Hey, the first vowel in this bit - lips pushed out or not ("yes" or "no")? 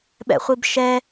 no